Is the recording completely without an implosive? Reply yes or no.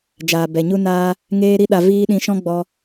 no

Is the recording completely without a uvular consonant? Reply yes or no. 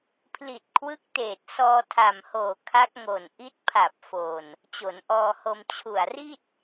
yes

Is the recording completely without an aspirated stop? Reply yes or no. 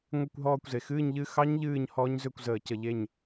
yes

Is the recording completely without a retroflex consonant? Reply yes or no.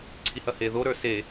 yes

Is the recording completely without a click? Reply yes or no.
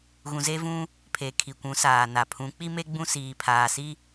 yes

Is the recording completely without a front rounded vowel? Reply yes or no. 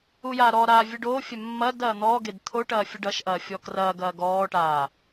yes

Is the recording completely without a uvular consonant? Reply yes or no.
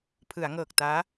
yes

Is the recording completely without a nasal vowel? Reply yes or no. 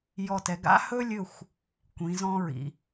no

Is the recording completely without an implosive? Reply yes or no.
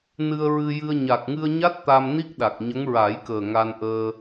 no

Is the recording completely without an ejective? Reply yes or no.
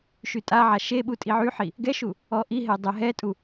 no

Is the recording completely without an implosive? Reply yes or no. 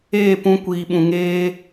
no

